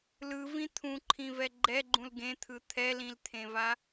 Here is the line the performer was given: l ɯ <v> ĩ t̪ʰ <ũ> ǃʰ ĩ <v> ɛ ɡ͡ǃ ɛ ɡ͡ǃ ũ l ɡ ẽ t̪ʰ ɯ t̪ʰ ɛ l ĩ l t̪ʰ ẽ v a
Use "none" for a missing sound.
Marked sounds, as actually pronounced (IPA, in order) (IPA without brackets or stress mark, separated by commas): v, ũ, v